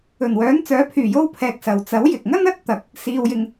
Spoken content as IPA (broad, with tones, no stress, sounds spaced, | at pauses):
ɵ˨˩ n w œː˨˥ n t͡s œː˨˥ pʰ yː˨˩ j o˥ w pʰ ɛː˧ k̚ s ɐ˨ w t͡s ɐ˨˥ w j ɪ˨ k̚ ŋ ɐ˥ n ɐ˥ t̚ t̪ ɐ˨ k̚ | s iː˨ w j ɪ˨ ŋ